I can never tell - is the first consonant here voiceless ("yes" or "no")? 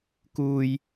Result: yes